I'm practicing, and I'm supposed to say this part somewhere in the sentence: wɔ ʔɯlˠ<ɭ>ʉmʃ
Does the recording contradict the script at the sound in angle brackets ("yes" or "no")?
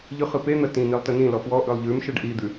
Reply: yes